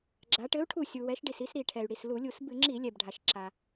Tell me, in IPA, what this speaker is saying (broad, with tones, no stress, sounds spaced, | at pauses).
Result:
ɡ͡ǁ a˩˧ ʈ ɘ˨˥ u̯ ʈʰ u˧˩ sʲ u˩ w ɛ˩˧ ʃ ɖ i˩ s i˩˧ s ɾ i˩ ʈʰ ɛ˩ y̯ ɽ i˩ s l u˧˩˧ lʲ u˧˩˧ s b ɨ˧˩˧ ŋ͡ǁ i˧˩˧ lʲ ɛ˩ b ɖʱ a˩ ʃ ǁ a˩